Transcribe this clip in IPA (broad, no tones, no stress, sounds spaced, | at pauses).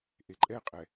ʔ e ǃʼ ɛ qʼ ɛ